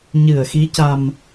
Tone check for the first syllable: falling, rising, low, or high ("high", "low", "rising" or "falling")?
low